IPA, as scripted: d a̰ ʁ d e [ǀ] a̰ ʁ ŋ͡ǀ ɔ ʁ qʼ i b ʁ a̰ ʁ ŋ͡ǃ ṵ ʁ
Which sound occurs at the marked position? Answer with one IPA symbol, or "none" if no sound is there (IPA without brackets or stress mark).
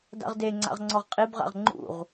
ŋ͡ǀ